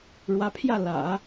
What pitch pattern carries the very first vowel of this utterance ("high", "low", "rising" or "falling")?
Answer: rising